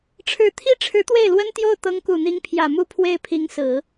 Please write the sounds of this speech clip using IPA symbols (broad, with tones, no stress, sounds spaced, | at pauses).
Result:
ʈ͡ʂʰ ɻ̩˧˥ t̪ʰ i˥ ʈ͡ʂʰ ɻ̩˧˥ t̪ w e˥˩ ɪ̯ l w ə˥ n t̪ j o˥˩ ʊ̯ t̪ ɤ˧˥ ŋ k u˨˩ n̪ i˧˥ ŋ pʰ j ä˨˩ m u˥˧ pʰ w e˥˩ ɪ̯ pʰ i˧˥ ŋ s ɹ̩˨˩˦